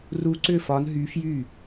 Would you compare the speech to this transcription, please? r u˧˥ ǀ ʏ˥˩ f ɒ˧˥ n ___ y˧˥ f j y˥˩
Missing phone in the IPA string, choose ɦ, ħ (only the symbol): ɦ